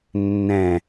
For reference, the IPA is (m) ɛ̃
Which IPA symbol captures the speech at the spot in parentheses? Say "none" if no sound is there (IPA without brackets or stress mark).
nː